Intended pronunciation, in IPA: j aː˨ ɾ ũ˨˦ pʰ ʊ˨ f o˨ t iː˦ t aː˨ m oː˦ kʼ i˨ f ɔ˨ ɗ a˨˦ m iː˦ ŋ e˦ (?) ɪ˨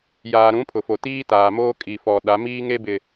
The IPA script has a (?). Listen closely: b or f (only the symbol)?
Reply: b